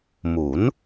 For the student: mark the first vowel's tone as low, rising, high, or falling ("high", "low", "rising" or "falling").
rising